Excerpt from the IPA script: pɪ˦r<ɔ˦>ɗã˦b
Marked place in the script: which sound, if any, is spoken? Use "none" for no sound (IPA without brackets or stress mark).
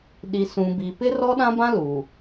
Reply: ɔ˦